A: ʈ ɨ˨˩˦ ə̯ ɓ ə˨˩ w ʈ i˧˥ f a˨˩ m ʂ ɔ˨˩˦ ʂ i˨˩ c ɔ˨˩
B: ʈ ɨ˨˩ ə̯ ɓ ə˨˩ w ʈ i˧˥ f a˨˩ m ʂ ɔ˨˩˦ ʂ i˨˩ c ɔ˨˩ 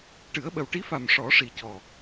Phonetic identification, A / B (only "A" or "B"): A